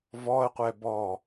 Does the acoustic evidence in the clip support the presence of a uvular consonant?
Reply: yes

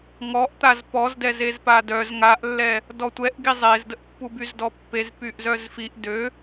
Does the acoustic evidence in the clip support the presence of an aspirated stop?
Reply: no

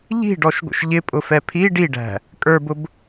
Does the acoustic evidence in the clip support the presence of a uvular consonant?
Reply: no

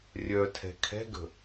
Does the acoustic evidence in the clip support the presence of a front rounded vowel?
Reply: yes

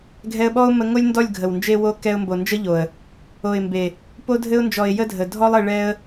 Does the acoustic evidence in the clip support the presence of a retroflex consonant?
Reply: yes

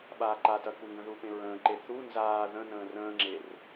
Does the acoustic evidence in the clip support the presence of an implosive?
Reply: yes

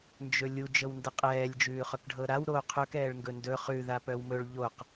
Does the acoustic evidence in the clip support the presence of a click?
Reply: no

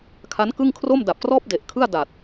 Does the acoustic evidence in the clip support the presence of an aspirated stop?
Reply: yes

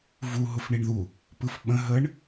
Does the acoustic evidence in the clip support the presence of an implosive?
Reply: yes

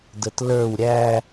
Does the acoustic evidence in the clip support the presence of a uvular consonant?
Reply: no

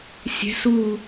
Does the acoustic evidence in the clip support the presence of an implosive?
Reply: no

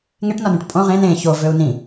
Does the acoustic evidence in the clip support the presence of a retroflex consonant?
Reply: yes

